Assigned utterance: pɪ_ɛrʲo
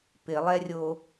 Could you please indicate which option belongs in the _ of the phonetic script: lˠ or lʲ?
lˠ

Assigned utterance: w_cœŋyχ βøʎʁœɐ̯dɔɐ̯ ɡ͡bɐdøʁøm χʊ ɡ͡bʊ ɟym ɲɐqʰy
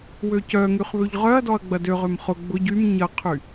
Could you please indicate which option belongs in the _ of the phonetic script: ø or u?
ø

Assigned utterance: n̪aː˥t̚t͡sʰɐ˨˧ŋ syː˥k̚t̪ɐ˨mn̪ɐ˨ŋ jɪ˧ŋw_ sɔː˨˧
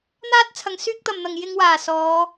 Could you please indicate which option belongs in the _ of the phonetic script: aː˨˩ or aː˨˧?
aː˨˩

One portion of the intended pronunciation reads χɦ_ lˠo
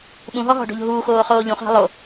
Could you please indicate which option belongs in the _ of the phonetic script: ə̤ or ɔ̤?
ə̤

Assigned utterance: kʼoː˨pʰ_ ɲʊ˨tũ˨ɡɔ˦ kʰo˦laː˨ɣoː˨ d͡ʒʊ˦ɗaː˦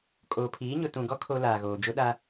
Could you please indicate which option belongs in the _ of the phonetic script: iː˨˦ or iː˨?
iː˨˦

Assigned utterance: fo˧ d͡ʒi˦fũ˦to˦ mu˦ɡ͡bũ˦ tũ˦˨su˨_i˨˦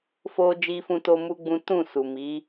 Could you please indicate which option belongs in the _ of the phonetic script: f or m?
m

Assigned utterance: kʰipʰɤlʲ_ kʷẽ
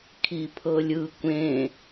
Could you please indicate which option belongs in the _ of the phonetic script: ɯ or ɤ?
ɯ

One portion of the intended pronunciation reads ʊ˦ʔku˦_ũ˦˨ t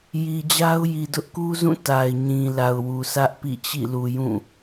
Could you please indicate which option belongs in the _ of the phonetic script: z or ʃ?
z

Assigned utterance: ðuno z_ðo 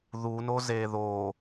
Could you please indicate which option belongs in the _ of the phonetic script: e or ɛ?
e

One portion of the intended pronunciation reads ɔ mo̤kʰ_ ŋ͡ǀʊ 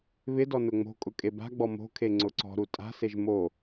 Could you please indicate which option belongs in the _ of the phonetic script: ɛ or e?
e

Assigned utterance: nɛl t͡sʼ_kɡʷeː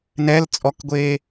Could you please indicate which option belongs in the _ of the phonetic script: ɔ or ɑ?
ɔ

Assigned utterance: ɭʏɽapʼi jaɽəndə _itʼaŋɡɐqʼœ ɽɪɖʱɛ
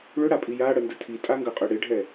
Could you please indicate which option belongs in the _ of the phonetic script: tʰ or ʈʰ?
tʰ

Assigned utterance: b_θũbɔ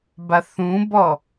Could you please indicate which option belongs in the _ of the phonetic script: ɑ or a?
a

